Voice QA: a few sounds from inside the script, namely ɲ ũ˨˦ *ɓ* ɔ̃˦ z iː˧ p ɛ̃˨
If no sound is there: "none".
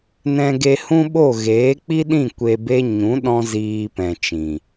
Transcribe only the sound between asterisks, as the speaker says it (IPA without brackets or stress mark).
ɗ